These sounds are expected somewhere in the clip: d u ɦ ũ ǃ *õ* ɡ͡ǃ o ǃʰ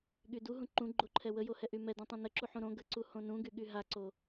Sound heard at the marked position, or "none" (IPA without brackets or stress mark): ũ